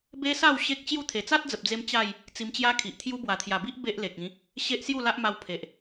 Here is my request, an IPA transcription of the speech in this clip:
b e˦ s a˥˧ w ɕ e˦ k̚ t͡ɕ j u˥˧ t̪ʰ e˨˩ t͡s a˦ t̚ d͡z ə˨ p̚ d͡z e˧ m t͡ɕ a˥˧ j | t͡s i˧ m t͡ɕ j a˦ kʰ i˨ ʔ t̪ʰ j u˦ b w a˨˩ t̪ʰ j a˨˩ b i˦ ʔ b e˦ ʔ l e˨ k̚ ĩ˨˦ | ɕ e˦ ʔ s j u˥˧ l a˦ ʔ m a˧ w pʰ e˨ ʔ

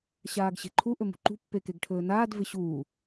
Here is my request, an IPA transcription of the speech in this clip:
ɕ aː ɡ ɕ e̤ ǃʰ u ʔ ɵ m ṳ ǃ ṳ pː e k e ɡ ʈʰ ɵː n aː d v ɪ ɕ uː

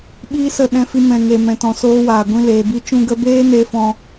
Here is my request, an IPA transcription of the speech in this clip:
ɓ iː˦ s ə˦˨ ɗ ɛ̃˧ f i˧ m ɛ̃˨ ŋ e˨ m ɛ̃˨ t ɔ̃˨ s oː˧ w aː˨ ɡʷ ĩ˧ l eː˨ b i˧ t͡ʃ ũ˧ ɡ ə˧ b eː˦ n e˧ f ɔ̃˦

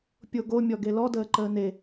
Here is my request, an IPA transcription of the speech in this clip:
pʲ o ɡ o mʲ ɔ ɡ e l ɔ d əː ǃ əː n e

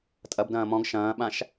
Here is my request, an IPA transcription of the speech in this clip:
tʼ ɐ b d ɐ̃ː m ɔ̃ ɡ ʃ ɐ̃ː ɓ ã ʃ

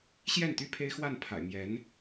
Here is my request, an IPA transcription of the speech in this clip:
ɕ j ɛ˥˩ n t̪ y˥ pʰ e˥ ɪ̯ x w a˥˩ n pʰ a̰˨˩ ɪ̯ m j ɛ˧˥ n

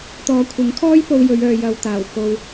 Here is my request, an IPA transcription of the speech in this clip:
t̪ ɔː˨˧ kʷʰ ɪ˨˥ ŋ kʰ ɔː˥ j p o˧ w j ɵ˨˧ ɥ œː˨ j ɐ˨ w t̪ aː˨˩ w k o˧ w

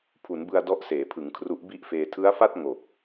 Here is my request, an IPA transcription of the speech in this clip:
pʰ u˩˦ n b ɯ˧ a̯ d ɔ˦˥ ʔ s eː˩˦ pʰ ɯ˩˦ ŋ kʰ r u˦˥ ʔ b i˥˩ ʔ f eː˧ tʰ ɯ˦˥ a̯ f a˥˩ t̚ ŋ o˨˩ k̚

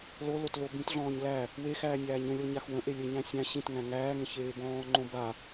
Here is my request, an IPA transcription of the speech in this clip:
l o l o t l o b ĩ t ɮ ɔ̃ː ɲ l æ | w e x æː nʲ æː ɲ ə̃ lʲ ɔ ɲ a x w ə̃ ʔ e lʲ ə ɲ æ̃ sʲ æ̃ ɕ ĩ t ŋ æ̃ ŋ æː ŋ ə̃ ç eː b ɔ̃ː ŋ͡ǃ õ b a

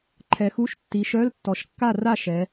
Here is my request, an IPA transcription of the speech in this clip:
ǃʰ ɛ˩˧ x u˧˥˧ ʃ tː i˩˧ ʃ œ˧˥˧ l tː ɔ˩˧ ʃ kː a˥˨ r a˥˨ ʃ ɛ˩˧

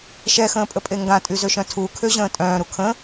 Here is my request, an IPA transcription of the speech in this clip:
ʃ ɛ x ə̃ː pʼ ə pʼ e ŋ ɡ ã tʼ y z ø ʃ œ̃ tʰ u kʰ ø ʑ ə̃ː tʼ œ̃ː ɾ u kʰ ə̃

